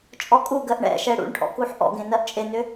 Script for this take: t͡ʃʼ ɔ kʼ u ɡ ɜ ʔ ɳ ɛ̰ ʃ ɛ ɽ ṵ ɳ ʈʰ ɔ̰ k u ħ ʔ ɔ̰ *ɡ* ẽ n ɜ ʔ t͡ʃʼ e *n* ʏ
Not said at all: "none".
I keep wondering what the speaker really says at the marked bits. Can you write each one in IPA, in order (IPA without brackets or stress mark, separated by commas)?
ɡ, n